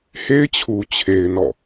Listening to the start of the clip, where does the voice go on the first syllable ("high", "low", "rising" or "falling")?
high